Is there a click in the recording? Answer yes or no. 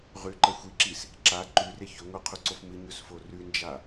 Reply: yes